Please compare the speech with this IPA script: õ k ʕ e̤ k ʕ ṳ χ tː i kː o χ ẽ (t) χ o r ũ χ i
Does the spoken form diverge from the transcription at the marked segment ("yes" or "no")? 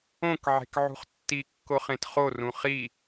no